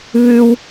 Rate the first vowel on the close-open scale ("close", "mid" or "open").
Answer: close